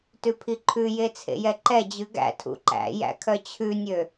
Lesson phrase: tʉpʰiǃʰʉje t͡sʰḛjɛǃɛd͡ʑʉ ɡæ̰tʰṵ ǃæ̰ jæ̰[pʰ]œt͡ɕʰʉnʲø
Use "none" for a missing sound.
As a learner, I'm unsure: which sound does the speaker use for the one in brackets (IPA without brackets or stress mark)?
kʰ